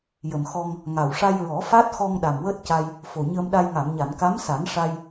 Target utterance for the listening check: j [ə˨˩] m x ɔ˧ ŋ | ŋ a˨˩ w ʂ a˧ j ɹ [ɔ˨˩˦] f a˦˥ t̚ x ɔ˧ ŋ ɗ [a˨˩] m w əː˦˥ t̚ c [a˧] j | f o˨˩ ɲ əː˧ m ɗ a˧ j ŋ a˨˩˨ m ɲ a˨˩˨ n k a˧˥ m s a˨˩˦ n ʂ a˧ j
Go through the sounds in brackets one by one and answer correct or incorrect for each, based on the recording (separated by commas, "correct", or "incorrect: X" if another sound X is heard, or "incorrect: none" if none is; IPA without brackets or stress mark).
correct, correct, correct, correct